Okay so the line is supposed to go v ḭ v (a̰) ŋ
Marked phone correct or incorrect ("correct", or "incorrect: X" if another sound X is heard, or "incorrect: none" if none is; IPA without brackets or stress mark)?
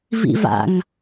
correct